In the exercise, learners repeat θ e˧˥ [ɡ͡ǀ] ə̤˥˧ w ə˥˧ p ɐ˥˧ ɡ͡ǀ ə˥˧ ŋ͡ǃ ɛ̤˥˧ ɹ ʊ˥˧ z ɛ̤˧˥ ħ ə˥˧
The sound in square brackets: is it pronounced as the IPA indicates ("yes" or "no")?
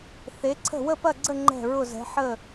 no